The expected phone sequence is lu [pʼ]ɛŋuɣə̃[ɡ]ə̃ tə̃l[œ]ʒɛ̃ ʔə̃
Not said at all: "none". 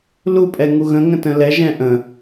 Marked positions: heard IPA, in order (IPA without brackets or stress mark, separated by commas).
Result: pʼ, ŋ, ɛ